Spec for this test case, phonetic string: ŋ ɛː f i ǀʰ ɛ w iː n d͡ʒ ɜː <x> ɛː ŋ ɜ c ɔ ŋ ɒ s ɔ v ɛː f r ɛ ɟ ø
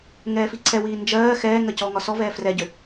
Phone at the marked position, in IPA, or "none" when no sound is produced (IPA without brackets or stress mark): x